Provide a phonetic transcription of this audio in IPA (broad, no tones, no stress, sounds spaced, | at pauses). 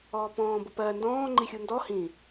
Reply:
ɔː p ɔ̃ː b ʊ p ɜ n d ɔ̃ː ŋ͡ǃ i xʲ u n d ɔ h ĩ